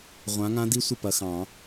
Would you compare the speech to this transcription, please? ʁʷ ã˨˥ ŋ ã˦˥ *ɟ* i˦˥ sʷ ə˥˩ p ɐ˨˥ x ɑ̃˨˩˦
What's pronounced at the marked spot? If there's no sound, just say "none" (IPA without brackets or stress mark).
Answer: d